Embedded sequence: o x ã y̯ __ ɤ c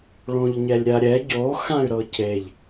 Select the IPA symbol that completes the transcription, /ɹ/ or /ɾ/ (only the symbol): ɾ